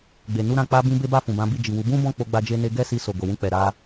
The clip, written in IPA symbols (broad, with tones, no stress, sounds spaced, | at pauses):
ɡ͡b e˨ n u˧ ɾ ã˧ k͡p a˧ b ĩ˧ b e˦ b a˦˨ f ũ˨ b ã˨˦ b i˦˨ d͡ʒ i˨ w u˨˦ b ũ˦ b ɔ̃˦˨ k͡p o˧ ɡ͡b a˧ d͡ʒ e˧ n e˧ ɡ ɛ˦ s i˧ s o˨ ɡ o˨ w ũ˧ k͡p ɛ˨ ɾ a˧